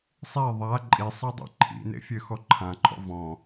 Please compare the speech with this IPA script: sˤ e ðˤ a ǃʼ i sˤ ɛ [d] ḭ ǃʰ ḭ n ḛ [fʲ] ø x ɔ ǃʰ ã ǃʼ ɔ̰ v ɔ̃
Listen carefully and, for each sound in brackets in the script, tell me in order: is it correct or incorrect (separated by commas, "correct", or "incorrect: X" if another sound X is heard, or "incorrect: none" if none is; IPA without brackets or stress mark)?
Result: incorrect: dˤ, correct